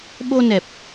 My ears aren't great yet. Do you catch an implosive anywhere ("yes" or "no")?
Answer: yes